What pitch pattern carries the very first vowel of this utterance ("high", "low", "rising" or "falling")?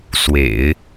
low